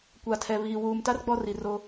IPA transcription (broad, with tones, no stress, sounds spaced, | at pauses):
kʷ a˨ tʰ ɛ˨ β iː˨ w uː˨ m t a˦ r ɡ͡b ɔ˦ r i˨ r o˦